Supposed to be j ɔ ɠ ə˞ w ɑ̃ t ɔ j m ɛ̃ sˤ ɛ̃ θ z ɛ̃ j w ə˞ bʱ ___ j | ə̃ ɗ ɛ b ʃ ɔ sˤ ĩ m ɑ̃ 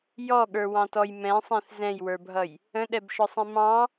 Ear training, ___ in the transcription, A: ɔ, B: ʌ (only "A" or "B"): B